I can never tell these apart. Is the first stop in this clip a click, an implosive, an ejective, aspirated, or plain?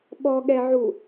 implosive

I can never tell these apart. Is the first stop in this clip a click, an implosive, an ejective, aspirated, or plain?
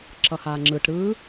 click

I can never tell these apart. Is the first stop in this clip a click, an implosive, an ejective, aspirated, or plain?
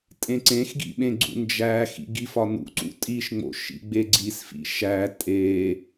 ejective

